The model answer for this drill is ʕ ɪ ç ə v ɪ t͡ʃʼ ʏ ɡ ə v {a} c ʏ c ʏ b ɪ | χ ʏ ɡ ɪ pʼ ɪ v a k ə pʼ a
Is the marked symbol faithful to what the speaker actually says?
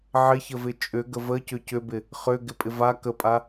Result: no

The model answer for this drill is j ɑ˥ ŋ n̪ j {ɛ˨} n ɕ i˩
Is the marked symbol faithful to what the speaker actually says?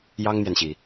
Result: yes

